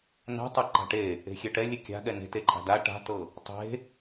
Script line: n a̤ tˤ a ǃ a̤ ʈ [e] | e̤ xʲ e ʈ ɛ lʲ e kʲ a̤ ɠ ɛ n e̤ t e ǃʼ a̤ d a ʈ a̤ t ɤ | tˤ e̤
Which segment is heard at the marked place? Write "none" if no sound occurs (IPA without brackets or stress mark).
e